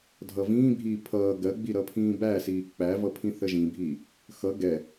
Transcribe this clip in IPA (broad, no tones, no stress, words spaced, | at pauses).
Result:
dʱʌvĩːbʱiː pʰʌː ɡɜɡ͡bi ɾʌpʰĩːbæsiː k͡pævʌpʰĩ θəʒĩbʱiː | xʌ ɡɛ